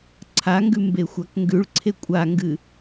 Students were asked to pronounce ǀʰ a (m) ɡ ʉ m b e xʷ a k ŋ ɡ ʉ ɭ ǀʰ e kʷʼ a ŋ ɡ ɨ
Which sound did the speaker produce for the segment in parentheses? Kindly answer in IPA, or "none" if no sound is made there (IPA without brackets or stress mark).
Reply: ŋ